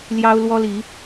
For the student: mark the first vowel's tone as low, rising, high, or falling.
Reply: high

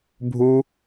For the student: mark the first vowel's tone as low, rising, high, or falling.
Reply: high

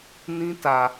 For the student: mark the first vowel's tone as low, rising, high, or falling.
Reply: high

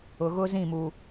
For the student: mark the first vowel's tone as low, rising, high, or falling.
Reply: low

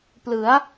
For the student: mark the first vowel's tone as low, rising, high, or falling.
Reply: rising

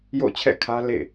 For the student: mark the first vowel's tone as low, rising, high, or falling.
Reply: falling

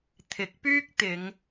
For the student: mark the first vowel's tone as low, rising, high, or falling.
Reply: rising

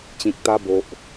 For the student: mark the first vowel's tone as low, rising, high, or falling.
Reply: low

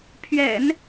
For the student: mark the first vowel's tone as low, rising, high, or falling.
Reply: low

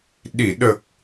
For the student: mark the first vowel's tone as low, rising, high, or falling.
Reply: low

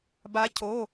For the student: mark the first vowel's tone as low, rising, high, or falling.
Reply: rising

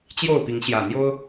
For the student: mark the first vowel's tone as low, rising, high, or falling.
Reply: falling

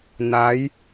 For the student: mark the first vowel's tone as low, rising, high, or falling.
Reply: rising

